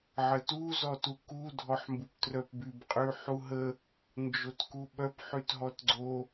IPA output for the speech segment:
ʕətu zɔtuku dʱɔħmbuptrœpbyb qʼyħuɦə | nd͡ʒotkuɓœp ħytɦɔtɡ͡ǀo

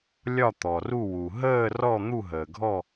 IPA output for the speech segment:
lʲɒ˦˨t̪ɔ˩ru˦˨wu˩ ɦəː˦˨rɔ˦˨ n̪u˦˨ɦəː˩ɡʱɔ˦˨

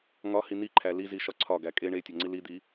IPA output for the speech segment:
ŋɒhi n̪iǃʰæ liziʃɒ ǀʰɒɡæ kʼe ɳetʲɒŋ͡ǀi lid̪i

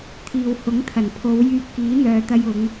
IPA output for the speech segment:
t̪ʰiː˨whʊ˨˥ŋt̪ʰɐ˨˩npʰo˨˧w jyː˧p̚kiː˨˥n̪œː˨t̪ɐ˧j ʊ˨˧ŋ

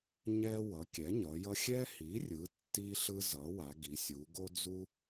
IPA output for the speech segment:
ɲɛ˦ wʌ˩˥kʲɛ˩˥ ɲʌ˩˧jʌ˦ xʲɛ˦hi˩˥rʲɯ˩˧ tːi˦ɬɯ˦ zʌ˩˥wa˩˧ɡi˩˧sʲu˩˧ ɡo˦d͡zu˦

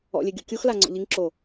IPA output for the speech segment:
ɔ̰lʲe ɡʲokʲuxla ŋ͡ǀɔ̰ʎiŋǁo

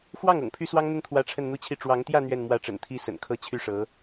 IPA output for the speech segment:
xwɑ˥˩ŋ ɤ̰˨˩ŋpʰy˥swɑ˥ŋn̪ə˥˩n t̪ʰwä˥ʈ͡ʂʰə˥˧nn̪u˥˧t͡ɕʰi˥˩ ʈ͡ʂwɑ˧˥ŋt̪jä˥˧ n̪ɥɛ˥˧nmwä˥˩ʈ͡ʂə̰˨˩n t̪ʰi˥ sə̰˨˩nkʰɤ˥t͡ɕʰy˥˩ʂɤ˧˥

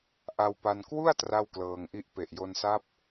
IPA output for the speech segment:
ʔa˧wpa˧n kwu˥˩a̯ tra˥˩wklɤː˧ŋʔi˥˩ʔ pe˨˩ʔjo˧nsa˦˥p̚

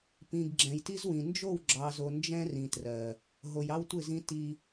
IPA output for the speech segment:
pĩ˨ɡɡ͡ǁɛ̃˨jti˦zwĩ˨ nd͡ʒo˦˨wɡ͡ǁɑ˨zo˨ nd͡ʒɛ̃˦rĩ˨trɜ˨ | ɦo˨jɑ˦wtʷɪ˦˨zĩ˦ ti˦

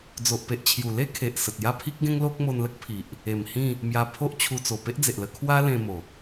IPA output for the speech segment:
d͡zo˨ʔpe˨ʔ t͡ɕʰju˨˩le˦ kʰe˨ʔsə˨t̚ja˥˧ pʰi˦k̚ɡẽ˦ŋlo˦k̚ mo˧nlə˦k̚pʰi˨ʔ | e˨˩mhĩ˥˧ | mja˧pʰo˦ʔ t͡ɕʰu˧t͡so˨˩ pe˦ʔd͡ze˨ʔlə˧ kʰwa˦lẽ˧ mo˨˩

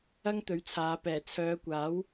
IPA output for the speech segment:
ɐ˥ŋt̪ɵ˨˥ɥt͡sʰaː˨˧ pɛː˨˩t͡sʰœː˨˧kʷaː˨˥w

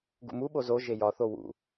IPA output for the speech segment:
ɡṵmuɓo zo ʒejɒθo wṵ

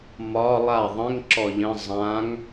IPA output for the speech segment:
mɒ lˠa ðˤə̃ŋ ǁɔʎə̃ zˤãŋ

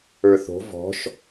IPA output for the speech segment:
ə˞θo̤ vɔ̤ʃ

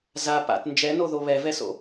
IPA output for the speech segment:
za pa̰t nd͡ʒɛnoðo βɛvɛso̰

